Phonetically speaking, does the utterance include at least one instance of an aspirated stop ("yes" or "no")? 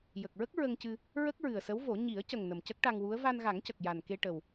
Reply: no